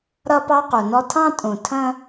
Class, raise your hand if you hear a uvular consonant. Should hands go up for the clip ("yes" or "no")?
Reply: yes